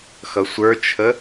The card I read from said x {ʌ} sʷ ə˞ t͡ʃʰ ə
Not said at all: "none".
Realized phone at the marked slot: ʌ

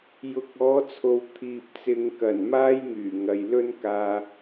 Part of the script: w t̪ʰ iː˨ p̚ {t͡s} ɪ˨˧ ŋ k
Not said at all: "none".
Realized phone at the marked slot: t͡s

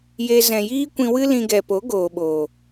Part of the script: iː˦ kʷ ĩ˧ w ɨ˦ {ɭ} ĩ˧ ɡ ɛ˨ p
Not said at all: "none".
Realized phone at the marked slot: l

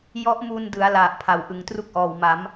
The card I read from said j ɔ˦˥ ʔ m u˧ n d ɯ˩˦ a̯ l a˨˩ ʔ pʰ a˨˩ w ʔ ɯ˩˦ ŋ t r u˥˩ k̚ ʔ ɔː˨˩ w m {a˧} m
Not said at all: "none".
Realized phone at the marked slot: a˩˦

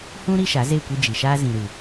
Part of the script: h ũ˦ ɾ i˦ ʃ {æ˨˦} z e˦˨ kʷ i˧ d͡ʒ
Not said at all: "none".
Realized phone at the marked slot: a˨˦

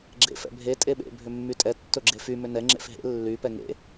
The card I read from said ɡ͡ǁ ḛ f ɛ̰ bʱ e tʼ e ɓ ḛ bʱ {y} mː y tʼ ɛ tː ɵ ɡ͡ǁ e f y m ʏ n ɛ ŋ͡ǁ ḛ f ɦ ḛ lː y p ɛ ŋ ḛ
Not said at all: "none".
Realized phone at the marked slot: ʏ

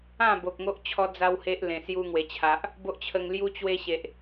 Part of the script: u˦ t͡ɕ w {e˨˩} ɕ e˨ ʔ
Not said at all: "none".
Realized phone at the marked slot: e˦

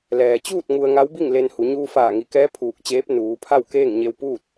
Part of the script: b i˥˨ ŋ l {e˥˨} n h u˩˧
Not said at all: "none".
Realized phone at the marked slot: e˧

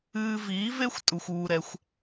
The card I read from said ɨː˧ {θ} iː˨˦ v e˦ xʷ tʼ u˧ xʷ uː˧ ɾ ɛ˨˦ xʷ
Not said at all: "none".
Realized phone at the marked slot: v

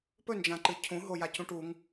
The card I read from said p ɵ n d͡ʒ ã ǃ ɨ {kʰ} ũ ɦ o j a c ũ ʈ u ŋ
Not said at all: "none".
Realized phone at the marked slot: cʰ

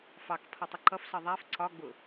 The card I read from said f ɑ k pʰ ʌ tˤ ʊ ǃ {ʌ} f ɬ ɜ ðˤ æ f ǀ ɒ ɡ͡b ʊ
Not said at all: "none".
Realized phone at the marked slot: ʌ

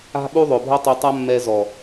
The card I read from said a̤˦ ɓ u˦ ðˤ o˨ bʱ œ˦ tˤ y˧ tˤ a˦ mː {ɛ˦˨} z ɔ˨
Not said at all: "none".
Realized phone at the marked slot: ɛ˧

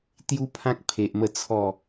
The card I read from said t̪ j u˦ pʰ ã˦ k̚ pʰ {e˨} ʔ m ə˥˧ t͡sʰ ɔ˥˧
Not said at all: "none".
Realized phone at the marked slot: e˨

